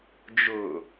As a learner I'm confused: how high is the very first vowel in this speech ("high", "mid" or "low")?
high